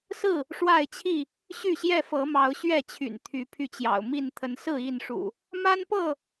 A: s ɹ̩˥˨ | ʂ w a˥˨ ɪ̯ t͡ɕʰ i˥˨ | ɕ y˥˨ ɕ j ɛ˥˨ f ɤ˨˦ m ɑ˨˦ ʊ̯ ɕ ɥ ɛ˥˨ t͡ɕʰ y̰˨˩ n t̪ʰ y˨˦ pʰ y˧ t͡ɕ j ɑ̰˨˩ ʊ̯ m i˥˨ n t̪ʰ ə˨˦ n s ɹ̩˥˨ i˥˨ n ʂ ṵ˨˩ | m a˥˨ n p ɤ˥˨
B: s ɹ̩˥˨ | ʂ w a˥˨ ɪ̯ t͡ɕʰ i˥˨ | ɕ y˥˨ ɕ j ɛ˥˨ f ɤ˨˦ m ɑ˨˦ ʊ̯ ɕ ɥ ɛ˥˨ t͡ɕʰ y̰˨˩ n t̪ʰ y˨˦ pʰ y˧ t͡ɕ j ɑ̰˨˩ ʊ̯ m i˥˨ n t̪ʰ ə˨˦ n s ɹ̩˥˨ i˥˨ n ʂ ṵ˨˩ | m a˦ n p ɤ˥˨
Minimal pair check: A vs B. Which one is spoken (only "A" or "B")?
B